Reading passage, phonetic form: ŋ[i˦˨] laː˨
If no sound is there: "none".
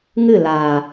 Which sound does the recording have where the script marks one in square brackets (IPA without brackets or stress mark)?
ɨ˦˨